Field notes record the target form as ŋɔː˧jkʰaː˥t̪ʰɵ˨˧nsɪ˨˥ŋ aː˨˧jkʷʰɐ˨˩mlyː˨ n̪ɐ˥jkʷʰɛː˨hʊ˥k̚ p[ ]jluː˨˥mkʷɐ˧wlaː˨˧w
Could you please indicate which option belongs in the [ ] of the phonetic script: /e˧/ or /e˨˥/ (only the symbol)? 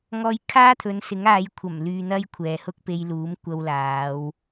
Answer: e˧